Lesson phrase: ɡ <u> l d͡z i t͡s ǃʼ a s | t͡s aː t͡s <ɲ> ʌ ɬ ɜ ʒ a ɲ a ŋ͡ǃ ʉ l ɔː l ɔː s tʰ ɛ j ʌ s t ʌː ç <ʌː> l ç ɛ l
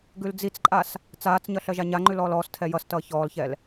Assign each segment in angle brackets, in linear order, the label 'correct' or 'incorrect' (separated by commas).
incorrect, correct, incorrect